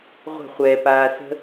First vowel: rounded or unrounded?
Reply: unrounded